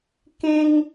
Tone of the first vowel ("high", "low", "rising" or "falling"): high